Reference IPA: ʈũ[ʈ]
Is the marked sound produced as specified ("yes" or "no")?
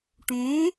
no